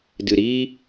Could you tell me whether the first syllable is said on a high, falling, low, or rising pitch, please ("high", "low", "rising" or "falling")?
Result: low